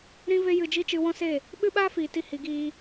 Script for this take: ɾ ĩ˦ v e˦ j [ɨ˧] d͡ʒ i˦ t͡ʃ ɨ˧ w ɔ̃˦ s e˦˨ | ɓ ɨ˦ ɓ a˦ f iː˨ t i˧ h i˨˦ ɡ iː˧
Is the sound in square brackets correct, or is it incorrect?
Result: correct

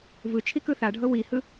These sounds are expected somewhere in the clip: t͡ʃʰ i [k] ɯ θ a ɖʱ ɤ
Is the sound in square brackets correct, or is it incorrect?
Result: correct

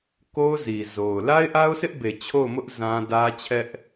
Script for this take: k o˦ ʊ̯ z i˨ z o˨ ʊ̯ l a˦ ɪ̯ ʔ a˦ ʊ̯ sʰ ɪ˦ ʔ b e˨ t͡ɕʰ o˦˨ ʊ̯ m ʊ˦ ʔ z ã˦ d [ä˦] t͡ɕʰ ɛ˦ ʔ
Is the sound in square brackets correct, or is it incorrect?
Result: correct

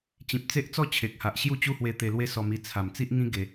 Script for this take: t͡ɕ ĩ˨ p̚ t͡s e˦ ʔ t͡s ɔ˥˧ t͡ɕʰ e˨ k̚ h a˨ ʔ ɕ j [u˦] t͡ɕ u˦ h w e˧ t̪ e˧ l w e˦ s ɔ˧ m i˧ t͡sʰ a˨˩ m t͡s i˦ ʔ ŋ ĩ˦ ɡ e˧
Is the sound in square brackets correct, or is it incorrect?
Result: incorrect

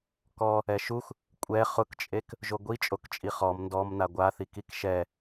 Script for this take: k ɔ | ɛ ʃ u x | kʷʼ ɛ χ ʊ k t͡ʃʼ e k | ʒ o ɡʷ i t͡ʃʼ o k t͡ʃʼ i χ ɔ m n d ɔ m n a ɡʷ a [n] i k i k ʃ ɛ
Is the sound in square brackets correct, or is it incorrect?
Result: incorrect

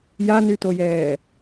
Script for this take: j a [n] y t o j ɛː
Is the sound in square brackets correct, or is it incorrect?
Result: correct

